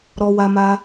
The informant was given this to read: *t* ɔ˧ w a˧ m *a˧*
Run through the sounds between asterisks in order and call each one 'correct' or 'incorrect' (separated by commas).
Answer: incorrect, correct